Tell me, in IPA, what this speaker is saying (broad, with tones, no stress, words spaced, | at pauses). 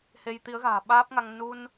he˧jt̪i˨˦ə̯ ɣa̤ː˨˩ɓaː˦˥p̚ŋa˧ŋ nu˧n